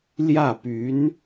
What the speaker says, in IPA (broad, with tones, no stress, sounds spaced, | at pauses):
l j ä˥˩ p y˧˥ n